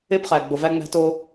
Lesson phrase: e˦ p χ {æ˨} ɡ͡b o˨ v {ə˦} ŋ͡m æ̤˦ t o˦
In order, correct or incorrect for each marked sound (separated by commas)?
correct, incorrect